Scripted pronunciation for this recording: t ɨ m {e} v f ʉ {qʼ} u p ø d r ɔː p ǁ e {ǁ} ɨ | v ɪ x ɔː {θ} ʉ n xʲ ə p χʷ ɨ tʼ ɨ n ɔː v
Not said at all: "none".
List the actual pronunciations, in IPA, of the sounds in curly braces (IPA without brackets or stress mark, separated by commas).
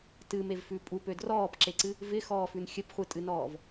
e, pʼ, ǀ, f